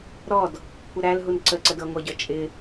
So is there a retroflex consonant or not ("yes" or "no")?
no